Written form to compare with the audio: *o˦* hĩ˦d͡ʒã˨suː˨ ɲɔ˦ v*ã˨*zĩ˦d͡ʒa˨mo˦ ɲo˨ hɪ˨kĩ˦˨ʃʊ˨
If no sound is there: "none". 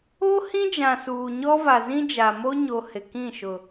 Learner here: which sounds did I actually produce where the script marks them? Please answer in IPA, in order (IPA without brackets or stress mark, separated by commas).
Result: o˦, a˨